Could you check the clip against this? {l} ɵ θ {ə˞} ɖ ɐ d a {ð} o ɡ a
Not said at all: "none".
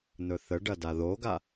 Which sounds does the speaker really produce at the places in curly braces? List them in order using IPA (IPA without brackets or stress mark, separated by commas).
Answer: n̪, ə, ð